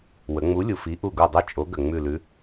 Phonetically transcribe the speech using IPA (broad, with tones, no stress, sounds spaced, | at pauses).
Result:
w ə˩˧ ŋ͡m u˨˥ lʲ u˨˩ f i˨˥ ʔ u˦˨ ɡ u˦˨ dˤ i˦˨ t͡ʃʼ o˨˥ ɡ ə˨˩ ŋ͡m ʉ˦˨ l ʉ˨˥